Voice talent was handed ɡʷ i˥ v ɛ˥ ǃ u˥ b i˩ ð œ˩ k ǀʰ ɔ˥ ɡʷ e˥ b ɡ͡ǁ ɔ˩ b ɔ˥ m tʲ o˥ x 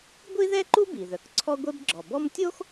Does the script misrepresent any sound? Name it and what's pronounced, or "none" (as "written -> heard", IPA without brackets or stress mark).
v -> ð